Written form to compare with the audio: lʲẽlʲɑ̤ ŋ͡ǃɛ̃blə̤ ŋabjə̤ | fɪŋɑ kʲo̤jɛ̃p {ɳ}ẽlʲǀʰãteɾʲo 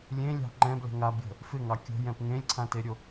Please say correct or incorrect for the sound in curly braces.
incorrect